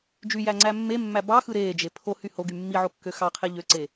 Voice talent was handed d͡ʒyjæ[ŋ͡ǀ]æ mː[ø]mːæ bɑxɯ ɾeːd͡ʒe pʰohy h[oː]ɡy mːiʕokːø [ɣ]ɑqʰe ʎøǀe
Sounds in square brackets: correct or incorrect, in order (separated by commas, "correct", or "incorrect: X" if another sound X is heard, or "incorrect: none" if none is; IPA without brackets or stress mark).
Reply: correct, incorrect: e, incorrect: o, incorrect: x